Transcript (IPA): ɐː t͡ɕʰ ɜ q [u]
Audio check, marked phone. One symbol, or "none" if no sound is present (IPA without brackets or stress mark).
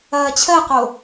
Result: o